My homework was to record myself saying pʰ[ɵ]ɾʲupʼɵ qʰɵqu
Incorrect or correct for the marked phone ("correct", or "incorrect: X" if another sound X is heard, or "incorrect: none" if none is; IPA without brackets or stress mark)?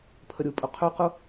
incorrect: ə